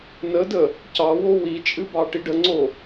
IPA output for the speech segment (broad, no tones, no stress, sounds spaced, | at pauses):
n ə d ə | c ɑ w o w i t͡ʃʼ ɨ b ɑ ʈ i ɖ ə ŋ͡ǀ o